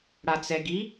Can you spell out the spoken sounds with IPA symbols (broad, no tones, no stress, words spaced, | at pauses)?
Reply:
ɽat͡sɛɡi